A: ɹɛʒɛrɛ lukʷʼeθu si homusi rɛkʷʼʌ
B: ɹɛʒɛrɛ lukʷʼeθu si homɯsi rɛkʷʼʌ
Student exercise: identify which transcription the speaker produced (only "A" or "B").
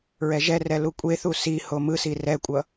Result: B